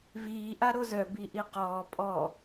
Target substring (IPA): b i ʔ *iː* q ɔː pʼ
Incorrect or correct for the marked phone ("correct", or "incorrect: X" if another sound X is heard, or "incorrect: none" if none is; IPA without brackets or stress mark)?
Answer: incorrect: i